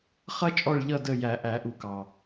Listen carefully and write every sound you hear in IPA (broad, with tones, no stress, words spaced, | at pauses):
χʌ˧t͡ʃʼɔ˧˩ɭʎʌ˧˩ də˧˩ jæ˨˩˦ʔæ˨˩˦ʔu˨˩˦kɑ˩